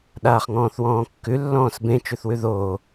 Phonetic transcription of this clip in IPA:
ɗaːχŋɔ̃ːθwɔ̃ːkːʉ lːɔ̃ːsbẽ t͡ʃʉθwʉðoː

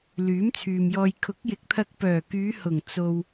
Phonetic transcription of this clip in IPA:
lyː˨˥mt͡sʰyː˨mjɔː˧j kʰʊ˨˥k̚jɪ˨˥k̚t̪ʰɐ˧k̚ pœː˨˩kyː˨˧hʊ˨˩ŋ t͡so˨w

